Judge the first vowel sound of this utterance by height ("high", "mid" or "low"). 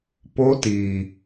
mid